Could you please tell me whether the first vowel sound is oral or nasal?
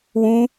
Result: nasal